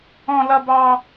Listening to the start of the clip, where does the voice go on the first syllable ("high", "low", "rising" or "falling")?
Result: high